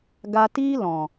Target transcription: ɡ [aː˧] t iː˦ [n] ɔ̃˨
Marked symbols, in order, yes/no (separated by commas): no, no